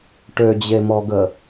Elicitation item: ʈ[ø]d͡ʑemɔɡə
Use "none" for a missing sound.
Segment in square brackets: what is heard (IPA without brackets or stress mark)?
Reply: ø